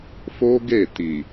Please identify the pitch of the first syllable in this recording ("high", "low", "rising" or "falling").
high